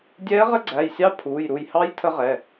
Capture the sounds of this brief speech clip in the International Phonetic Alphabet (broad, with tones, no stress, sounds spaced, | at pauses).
dʲ ɛː˧˥ ʁ ə˧˥ ɡ͡ǀ æ˩˧˩ j sʲ ɑ˧˥ pʰ uː˩˧˩ j ɾ u˧˩ j h ɑ˧˥ j tʰ ə˧˥ ʁ ɛ˩˧˩